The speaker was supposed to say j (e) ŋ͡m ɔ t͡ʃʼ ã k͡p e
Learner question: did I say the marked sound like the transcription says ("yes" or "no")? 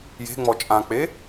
no